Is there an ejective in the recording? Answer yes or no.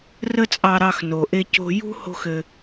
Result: yes